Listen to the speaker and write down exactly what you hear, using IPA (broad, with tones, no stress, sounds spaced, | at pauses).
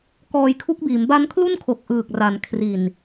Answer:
k ɔː˧ j kʰ u˦˥ k̚ b iː˩˦ m b a˦˥ n kʰ l u˥˩ n kʰ o˨˩ k̚ ʔ ɯː˨˩ k̚ r a˩˦ n kʰ r i˨˩ n